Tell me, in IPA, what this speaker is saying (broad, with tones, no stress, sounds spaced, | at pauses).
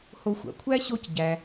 h o˧ xʷ a̰˩ kʷʰ æ˥ ɕ o˥ c ɟ æ˧